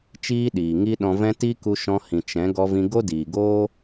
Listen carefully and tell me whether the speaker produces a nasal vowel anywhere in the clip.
yes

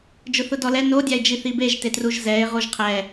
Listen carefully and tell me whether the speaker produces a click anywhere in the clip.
no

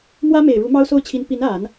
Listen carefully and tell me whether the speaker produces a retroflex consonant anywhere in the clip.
yes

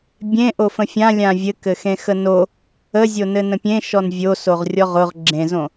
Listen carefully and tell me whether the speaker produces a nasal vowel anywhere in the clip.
yes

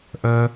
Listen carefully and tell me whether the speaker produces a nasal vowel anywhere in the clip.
no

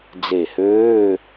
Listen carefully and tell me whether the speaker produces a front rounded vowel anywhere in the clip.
yes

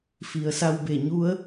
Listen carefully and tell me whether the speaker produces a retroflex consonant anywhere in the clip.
no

